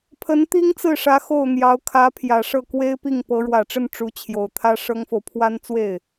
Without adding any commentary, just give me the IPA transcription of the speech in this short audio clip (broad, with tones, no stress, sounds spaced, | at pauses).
pʰ ə˧˥ n t̪ i˥ ŋ t͡s ɹ̩˥˩ ʂ ä˧˥ x o˥˩ ʊ̯ n̪ j ɑ˧˥ ʊ̯ kʰ ä˧˥ pʰ j ä˨˩ ʂ ɤ˥˩ k w e˥ ɪ̯ p i˥˩ ŋ p ɤ˧˥ ɻ w ä˨˩ ʈ͡ʂ ə˥˩ n ʈ͡ʂ u˧˥ t͡ɕʰ j o˨˩ ʊ̯ t̪ʰ ä˥ ʂ ɤ˥ ŋ f o˨ ʊ̯ pʰ w a˥ n t͡s w e˥˩ ɪ̯